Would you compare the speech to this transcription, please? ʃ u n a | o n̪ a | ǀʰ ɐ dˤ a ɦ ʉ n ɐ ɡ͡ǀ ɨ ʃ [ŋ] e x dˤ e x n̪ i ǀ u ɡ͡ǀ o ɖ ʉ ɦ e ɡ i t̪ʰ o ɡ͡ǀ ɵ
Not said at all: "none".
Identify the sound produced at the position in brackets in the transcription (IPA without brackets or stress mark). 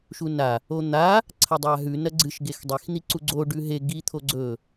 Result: ɡ